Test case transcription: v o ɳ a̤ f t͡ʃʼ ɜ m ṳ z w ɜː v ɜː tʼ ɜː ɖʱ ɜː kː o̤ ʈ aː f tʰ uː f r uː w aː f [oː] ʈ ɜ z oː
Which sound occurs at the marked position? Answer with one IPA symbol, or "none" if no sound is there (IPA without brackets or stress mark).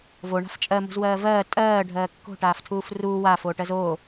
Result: oː